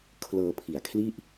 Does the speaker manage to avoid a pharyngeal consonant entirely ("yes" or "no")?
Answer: yes